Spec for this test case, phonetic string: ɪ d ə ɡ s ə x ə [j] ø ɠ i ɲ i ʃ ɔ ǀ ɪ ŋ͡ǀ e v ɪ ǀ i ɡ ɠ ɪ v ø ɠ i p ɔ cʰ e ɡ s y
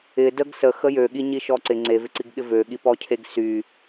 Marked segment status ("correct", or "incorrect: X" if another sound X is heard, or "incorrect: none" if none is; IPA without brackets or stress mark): correct